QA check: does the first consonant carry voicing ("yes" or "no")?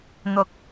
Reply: yes